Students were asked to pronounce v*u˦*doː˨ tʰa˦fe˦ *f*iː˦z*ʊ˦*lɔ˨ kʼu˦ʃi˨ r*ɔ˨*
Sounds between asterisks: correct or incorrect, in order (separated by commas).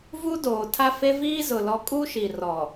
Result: correct, incorrect, incorrect, correct